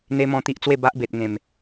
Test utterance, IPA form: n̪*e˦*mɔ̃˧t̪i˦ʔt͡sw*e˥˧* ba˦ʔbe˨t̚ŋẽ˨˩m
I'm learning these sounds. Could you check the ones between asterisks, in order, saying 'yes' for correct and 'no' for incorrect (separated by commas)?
yes, yes